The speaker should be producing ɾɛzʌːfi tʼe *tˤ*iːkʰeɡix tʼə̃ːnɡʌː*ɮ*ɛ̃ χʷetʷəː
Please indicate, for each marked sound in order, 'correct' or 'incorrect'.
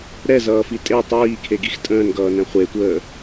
correct, incorrect

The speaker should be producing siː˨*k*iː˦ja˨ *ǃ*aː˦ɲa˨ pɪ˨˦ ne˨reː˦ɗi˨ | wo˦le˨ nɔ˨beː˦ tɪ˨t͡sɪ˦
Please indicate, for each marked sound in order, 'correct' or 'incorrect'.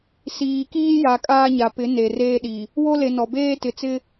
correct, incorrect

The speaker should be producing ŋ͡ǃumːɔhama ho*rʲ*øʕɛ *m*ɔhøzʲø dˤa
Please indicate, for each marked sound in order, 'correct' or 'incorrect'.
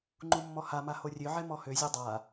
correct, correct

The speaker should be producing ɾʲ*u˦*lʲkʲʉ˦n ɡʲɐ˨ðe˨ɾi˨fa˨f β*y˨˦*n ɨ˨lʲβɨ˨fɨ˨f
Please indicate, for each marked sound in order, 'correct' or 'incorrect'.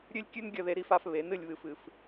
incorrect, incorrect

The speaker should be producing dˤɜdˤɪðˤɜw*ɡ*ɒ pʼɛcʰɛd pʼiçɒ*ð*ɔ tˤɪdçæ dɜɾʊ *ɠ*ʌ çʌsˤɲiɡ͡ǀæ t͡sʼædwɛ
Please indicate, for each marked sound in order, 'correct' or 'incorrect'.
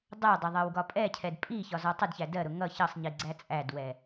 correct, incorrect, incorrect

